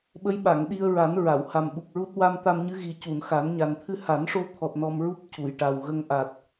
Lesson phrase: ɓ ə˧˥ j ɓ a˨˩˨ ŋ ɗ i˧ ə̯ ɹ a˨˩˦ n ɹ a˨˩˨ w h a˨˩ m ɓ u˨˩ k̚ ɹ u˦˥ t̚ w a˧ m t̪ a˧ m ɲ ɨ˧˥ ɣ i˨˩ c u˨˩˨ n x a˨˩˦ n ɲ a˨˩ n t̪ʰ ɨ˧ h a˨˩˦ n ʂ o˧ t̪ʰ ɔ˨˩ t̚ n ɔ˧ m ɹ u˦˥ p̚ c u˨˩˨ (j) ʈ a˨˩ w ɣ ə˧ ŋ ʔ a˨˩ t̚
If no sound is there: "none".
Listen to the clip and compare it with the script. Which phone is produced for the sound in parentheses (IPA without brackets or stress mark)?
j